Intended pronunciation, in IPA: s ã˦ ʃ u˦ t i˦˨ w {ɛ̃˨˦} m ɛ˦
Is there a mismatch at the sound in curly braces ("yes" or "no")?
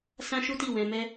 yes